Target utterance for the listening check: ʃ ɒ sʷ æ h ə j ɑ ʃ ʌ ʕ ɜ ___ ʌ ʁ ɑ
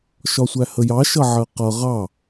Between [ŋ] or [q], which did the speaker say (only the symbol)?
q